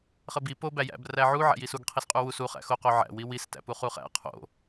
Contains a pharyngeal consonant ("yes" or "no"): yes